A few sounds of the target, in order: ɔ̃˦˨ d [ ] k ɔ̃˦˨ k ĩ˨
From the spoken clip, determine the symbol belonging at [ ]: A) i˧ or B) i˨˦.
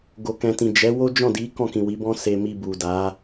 B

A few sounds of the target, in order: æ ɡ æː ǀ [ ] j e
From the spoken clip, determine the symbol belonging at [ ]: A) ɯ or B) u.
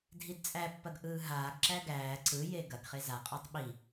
A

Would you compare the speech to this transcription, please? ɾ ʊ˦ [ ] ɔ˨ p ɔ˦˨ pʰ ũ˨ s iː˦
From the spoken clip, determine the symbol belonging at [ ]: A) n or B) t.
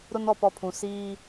A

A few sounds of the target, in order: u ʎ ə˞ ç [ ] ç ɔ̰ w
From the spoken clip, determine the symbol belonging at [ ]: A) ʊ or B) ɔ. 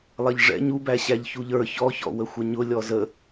B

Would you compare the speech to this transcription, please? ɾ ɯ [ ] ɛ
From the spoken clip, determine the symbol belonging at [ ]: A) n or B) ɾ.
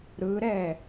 B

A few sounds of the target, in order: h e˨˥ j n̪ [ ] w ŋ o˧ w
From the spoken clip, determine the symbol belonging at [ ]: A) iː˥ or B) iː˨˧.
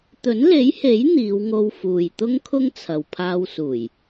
B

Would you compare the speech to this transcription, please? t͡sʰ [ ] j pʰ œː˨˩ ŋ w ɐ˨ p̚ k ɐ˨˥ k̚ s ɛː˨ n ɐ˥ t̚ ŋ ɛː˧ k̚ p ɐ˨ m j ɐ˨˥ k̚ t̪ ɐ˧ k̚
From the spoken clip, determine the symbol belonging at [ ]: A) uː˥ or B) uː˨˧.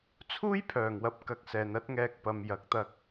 A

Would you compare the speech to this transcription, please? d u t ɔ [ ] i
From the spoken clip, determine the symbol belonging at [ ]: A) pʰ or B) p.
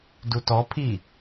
A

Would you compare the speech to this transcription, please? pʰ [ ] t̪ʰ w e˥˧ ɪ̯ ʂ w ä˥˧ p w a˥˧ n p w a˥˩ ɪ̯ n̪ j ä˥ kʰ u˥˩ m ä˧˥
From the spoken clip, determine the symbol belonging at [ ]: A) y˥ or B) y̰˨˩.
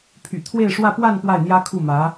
B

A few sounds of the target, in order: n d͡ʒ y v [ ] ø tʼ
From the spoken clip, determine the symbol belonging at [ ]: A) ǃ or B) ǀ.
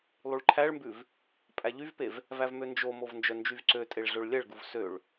B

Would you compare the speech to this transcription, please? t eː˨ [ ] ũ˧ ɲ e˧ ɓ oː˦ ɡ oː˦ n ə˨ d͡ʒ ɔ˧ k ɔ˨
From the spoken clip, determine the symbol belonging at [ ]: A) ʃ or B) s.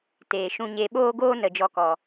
A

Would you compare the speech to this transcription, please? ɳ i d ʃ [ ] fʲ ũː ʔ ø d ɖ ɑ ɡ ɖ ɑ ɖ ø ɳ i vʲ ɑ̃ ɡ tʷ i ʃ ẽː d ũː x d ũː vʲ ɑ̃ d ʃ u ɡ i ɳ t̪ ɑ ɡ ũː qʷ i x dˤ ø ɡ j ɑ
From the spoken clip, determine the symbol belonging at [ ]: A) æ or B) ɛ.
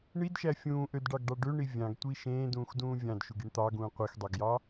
A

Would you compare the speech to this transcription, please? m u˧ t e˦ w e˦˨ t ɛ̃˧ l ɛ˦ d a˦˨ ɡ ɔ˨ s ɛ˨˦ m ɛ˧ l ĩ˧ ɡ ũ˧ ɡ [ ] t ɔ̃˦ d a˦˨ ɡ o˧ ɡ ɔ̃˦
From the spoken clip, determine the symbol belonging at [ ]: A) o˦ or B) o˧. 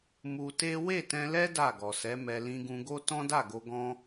A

